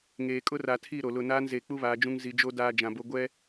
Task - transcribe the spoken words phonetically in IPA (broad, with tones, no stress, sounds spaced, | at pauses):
ŋ eː˨ kʼ ʊ˦ r a˨ tʰ i˦˨ ɾ o˨ l ʊ˦˨ n aː˦ n z eː˨ k͡p u˦ β aː˨˦ d͡ʒ ũ˦ ŋ z i˨ d͡ʒ o˦ d aː˦ d͡ʒ ã˨ b o˦ ɡʷ ɛ˦